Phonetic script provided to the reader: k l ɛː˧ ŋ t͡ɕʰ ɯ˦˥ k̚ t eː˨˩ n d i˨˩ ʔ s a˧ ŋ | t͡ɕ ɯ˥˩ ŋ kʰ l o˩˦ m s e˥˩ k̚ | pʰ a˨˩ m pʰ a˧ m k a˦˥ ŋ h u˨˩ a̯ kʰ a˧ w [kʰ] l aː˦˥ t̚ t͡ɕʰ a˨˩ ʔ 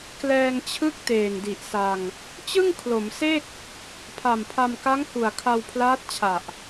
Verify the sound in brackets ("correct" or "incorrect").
incorrect